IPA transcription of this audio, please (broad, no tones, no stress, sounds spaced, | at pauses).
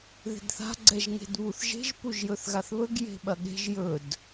ð e̤ d θ a̤ ɡ͡ǀ ɛ ʒ ŋ e̤ d β u θ ʒ e̤ ʒ p u ʒ j ɵ θ ɣ a θ β ɵ ɡ j e̤ ɓ ɐ ɠ e̤ ʒ j ɵ d